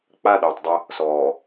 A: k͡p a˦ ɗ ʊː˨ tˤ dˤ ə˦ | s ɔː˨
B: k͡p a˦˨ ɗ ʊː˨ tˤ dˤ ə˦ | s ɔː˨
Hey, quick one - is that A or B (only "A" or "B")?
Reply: B